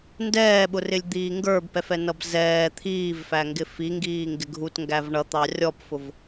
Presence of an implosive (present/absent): present